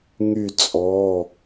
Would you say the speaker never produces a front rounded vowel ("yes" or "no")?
no